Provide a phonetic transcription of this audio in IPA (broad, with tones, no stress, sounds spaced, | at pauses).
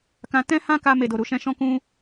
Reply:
k ã˧ t ɛ̃˦ h ã˦ k a˧ m e˨ d o˨ ɾ u˧ ʃ ɛ̃˧ ʃ ɔ̃˦ k ũ˦